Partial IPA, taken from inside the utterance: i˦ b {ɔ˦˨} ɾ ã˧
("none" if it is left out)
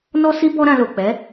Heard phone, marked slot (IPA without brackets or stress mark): ɔ˦